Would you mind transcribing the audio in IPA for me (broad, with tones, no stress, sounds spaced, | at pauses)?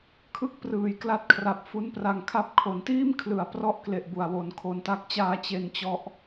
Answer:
kʰ ɯ˥˩ k̚ p r ɯː˨˩ j k l a˦˥ t̚ kʰ r a˨˩ p̚ f u˦˥ n p r a˧ ŋ kʰ a˥˩ p̚ kʰ o˩˦ n t iː˥˩ m kʰ l ɯ˨˩ a̯ p r ɔ˥˩ ʔ k l e˨˩ ʔ b u˨˩ a̯ w o˩˦ n kʰ o˧ n t a˥˩ k̚ t͡ɕ aː˥˩ t͡ɕ e˧ n t͡ɕ ɔ˦˥ ʔ